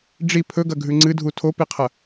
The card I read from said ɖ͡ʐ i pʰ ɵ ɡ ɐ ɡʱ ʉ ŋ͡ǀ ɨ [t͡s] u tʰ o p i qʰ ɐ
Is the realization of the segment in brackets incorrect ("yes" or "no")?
yes